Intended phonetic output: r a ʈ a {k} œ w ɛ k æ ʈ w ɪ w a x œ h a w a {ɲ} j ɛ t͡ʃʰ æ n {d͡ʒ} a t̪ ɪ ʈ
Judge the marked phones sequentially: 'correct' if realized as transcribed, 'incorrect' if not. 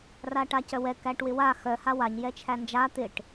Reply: incorrect: c, correct, correct

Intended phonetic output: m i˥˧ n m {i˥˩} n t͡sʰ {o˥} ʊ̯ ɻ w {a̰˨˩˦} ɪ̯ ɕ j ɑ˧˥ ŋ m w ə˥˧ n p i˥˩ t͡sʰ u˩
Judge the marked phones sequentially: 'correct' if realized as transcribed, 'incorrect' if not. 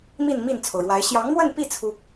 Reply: correct, incorrect: o˩, incorrect: a˧˥

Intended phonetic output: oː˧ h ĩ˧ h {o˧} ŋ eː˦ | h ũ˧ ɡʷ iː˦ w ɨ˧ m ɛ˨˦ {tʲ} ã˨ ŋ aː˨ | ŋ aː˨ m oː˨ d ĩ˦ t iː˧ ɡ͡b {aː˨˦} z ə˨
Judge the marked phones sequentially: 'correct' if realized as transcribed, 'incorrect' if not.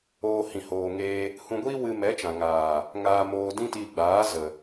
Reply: incorrect: oː˧, incorrect: t͡ʃ, correct

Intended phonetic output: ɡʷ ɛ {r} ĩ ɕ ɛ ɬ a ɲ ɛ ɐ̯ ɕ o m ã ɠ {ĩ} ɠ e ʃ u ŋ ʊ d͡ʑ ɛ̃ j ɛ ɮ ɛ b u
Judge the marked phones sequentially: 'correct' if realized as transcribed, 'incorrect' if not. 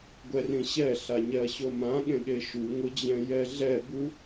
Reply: correct, incorrect: ẽ

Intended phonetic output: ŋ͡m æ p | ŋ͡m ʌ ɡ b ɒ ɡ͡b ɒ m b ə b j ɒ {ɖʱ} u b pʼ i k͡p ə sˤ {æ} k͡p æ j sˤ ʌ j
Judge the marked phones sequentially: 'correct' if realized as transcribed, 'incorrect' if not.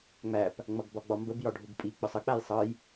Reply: correct, incorrect: ə

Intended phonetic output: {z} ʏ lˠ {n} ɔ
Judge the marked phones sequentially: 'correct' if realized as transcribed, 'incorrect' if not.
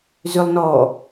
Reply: correct, correct

